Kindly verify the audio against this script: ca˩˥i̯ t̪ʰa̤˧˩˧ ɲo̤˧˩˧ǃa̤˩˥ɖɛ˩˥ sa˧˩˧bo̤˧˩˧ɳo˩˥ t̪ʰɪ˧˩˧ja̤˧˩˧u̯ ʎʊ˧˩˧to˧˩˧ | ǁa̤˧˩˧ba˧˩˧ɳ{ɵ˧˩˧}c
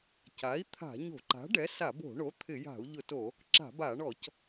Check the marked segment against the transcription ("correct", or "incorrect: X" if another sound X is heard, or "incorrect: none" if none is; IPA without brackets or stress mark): incorrect: ɔ˧˩˧